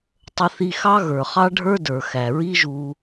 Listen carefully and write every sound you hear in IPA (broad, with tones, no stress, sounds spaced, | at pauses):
tˤ ə˧ θ i˧ x ɑ˦ ɣ ə˞˨ χ ɑ˦ ɖʱ ə˞˦ d ə˞˨ x æ˨ ɹ i˦ ʒ u˧